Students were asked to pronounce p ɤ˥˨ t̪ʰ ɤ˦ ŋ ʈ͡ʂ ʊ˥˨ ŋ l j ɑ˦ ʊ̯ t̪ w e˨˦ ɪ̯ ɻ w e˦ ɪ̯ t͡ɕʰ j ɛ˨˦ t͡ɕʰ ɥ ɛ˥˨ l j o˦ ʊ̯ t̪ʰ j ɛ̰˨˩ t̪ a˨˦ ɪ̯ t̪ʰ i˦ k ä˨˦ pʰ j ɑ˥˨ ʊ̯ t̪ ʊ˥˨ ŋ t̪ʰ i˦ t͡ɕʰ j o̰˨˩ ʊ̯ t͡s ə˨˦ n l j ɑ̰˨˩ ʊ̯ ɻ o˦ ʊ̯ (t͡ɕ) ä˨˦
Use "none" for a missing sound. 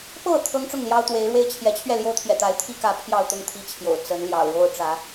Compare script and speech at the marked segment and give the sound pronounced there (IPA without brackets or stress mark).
ʈ͡ʂ